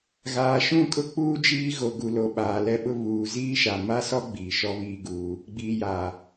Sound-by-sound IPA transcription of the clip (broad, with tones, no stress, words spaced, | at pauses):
ɣaː˨ʃũ˦˨kʼʊ˦k͡puː˦ d͡ʒiː˦ɣo˨ɡu˨lo˨ ɓaː˨lɛ˦ɓʊ˦ βuː˨ ziː˦ʃa˨ma˦sɔ˦ ɡ͡biː˨ʃɔ˦βiː˦ɡuː˦ | ɡ͡biː˨jaː˨